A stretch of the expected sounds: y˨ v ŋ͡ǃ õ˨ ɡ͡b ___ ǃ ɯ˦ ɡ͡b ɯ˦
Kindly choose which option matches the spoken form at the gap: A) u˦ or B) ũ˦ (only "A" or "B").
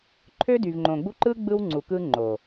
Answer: A